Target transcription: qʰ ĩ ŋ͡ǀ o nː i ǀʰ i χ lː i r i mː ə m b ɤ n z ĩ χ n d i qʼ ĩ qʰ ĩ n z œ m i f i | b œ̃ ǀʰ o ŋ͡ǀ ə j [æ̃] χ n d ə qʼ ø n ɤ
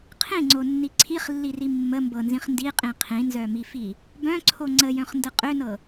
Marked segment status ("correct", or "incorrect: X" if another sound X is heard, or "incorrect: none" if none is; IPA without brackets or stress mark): incorrect: œ̃